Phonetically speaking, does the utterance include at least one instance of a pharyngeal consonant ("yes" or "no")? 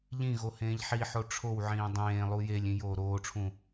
yes